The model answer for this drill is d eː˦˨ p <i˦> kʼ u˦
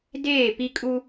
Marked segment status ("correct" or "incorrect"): correct